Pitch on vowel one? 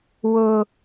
high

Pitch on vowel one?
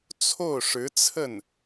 falling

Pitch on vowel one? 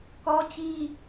high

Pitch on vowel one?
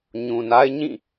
low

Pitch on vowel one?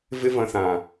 high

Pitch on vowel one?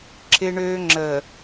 high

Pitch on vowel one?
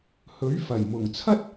rising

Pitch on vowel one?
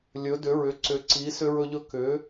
rising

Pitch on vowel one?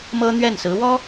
high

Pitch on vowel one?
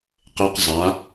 high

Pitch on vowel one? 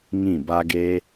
falling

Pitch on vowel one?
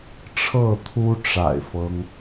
falling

